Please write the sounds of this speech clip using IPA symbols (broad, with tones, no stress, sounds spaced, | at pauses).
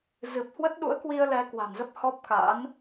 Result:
z ɨ˨˩ p̚ h w ə˦˥ t̚ ɗ ṵ˧˥ ə̯ k w i˧ ə̯ l ɛ˧ k w a̤˨˩ n z ə˦˥ p̚ h ɔ˦˥ p̚ k a̰˧˥ n